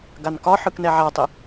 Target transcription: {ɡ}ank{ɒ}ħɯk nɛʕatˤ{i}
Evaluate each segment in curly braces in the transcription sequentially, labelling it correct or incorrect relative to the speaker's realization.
correct, correct, correct

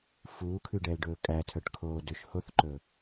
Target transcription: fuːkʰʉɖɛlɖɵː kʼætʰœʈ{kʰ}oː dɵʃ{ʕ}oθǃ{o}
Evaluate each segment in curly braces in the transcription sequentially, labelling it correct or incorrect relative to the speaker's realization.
correct, incorrect: h, incorrect: ɵ

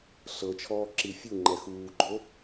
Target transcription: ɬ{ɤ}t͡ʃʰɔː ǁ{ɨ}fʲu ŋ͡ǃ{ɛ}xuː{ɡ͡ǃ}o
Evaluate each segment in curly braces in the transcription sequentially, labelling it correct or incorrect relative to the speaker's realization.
correct, incorrect: i, correct, correct

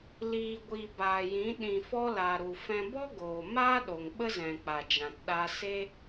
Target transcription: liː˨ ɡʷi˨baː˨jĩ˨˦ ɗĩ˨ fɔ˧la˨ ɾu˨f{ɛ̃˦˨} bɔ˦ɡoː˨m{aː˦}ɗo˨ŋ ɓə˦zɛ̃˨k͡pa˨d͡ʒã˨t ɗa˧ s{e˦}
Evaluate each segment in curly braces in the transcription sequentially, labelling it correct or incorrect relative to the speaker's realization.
incorrect: ɛ̃˧, correct, correct

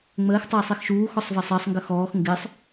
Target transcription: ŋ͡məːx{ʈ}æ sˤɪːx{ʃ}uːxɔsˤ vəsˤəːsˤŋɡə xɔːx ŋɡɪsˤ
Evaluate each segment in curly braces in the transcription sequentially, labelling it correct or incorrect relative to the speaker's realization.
incorrect: tˤ, correct

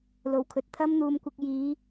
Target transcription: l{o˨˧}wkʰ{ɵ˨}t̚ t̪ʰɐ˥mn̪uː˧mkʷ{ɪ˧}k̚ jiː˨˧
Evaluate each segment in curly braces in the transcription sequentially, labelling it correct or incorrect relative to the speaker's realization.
incorrect: o˨˩, correct, correct

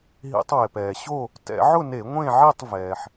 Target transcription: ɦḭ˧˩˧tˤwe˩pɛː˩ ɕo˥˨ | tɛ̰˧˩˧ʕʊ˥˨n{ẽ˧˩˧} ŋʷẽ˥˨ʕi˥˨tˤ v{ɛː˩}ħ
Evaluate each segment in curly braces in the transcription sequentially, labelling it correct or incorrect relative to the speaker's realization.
incorrect: e˧˩˧, correct

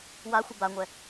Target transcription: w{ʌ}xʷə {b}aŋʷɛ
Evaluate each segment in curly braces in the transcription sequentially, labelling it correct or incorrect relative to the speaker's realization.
incorrect: a, correct

